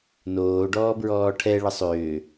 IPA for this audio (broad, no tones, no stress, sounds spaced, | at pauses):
n oː ɖ ɔː b ɹ ɔː ʈʰ ɛ ɭ ə sˤ ʏː